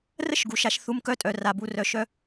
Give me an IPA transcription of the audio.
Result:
r ə˦ ʃ ɡ u˨ ʃ a˧ ʃ θ u˧ m k œ˧ tʼ œ˨ r a˨ b u˧ r œ˧ ʃ œ˦

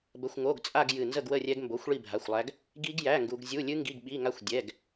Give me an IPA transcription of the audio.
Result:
b ə˧˥˧ xʷ ŋ o˧˥˧ ɡ t͡sʼ a˥˧ ɡ j ɨ˥˧ n z ə˥˧ ɡ w ə˥˧ rʲ ɛ˦˥ ɡ m b o˧˥˧ xʷ ɭ i˥˧ bʱ a˧˥˧ xʷ lˠ æ˦˥ ɡ | ɡ i˦˥ ɡ j æ˧˥˧ ŋ ɡ u˦˥ ɡ zʲ u˧˥˧ lʲ ɨ˦˥ ŋ ɡ i˧˥˧ ɡ ɓ i˧˥˧ ŋ a˦˥ xʷ dʲ ɛ˧˥˧ ɡ

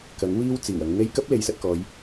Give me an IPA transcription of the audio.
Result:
k ɐ˨˥ ŋ w iː˥ w t͡s iː˨˩ w ɐ˨˧ ŋ n̪ e˥ j k ɐ˥ p̚ l e˨˧ j s ɐ˧ t̚ k ɔː˨˧ j

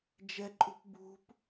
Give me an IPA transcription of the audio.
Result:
d͡ʒ ɛ ǃʼ ṳ p b ṳ p

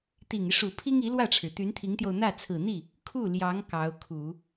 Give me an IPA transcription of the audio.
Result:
t̪ i˨˩ ŋ i˦ ʂ u˨˩ pʰ i˥ ŋ i˧˥ l w ä˥˩ ʈ͡ʂʰ ɻ̩˩ t̪ y˧˥ n t̪ʰ i˧˥ ŋ t̪ j o˧ ʊ̯ n̪ ä˥˩ t͡sʰ ɹ̩˨˩ n̪ i˥˩ | kʰ u˥˩ l j ɑ˧˥ ŋ k ɑ˧˥ ʊ̯ kʰ u˨˩˦

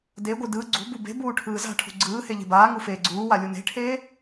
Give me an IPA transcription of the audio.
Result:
d e ɡʷ ɯ d ɯ ɡ͡ǀ ṳ b u b e̤ b uː ʈʰ ɯː z a̤ ʈʰ ṳ ɡ͡ǀ ɯː h e ʎ e̤ b aː ŋ u f eː ɡ͡ǀ uː w a lʲ u n e̤ ʈʰ eː

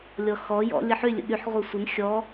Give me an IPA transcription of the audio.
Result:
lʲ ɔ x ɔ j ɔ̰ lʲ ə ħ y lʲ ə̰ ɠ y ħ ʁʷ œ sʷ ə n xʲ ɔ

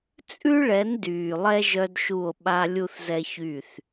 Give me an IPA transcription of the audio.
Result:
t͡sʼ ʉ˦ ɭ ɛ˨˦ n d yː˨ lˠ ɛ˦ ʒ œ˦ d ʃ u˦˨ o̯ ɓ a˦ lʲ u˦ θ z ɛ˦ ç y˦˨ θ

